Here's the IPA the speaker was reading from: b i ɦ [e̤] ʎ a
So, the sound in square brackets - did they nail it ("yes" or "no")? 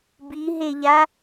no